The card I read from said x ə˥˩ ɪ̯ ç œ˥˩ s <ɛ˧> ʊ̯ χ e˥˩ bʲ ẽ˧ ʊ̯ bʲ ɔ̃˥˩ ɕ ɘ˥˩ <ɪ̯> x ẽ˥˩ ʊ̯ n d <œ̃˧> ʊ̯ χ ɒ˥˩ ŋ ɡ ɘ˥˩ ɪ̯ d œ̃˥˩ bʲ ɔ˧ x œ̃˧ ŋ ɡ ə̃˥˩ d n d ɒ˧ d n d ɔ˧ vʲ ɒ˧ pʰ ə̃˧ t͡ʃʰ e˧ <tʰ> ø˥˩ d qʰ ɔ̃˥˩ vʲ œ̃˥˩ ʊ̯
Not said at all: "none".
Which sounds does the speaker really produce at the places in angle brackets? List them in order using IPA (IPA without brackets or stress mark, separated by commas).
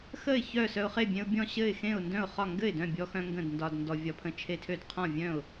œ˧, ɪ̯, œ̃˥˩, tʰ